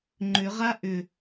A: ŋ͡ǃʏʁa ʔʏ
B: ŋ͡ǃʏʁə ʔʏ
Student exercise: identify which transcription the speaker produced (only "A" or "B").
A